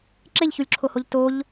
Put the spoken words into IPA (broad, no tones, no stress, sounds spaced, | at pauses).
ǁ e ʎ ç u lʲ ǁʰ o h o ʎ t o ʎ